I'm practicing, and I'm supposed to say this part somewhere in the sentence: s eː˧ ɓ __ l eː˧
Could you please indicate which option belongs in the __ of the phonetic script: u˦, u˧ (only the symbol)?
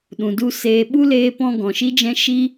u˦